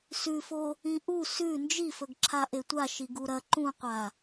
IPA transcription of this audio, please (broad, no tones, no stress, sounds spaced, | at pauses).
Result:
s ʉ f o | ĩ ʔ u s ʉ n d͡ʒ i f ɵ ɡ ǁʰ a ʔ e tʷ a ʃ i ɡ u ɾ ɐ ǃ ũ qʷ a